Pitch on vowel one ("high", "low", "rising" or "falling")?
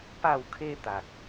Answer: falling